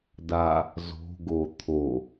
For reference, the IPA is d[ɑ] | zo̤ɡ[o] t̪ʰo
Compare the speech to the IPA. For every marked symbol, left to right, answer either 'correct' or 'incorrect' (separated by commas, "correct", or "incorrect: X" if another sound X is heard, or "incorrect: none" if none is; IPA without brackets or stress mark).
incorrect: a, correct